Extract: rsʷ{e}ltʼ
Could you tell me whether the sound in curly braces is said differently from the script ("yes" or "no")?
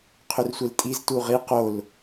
no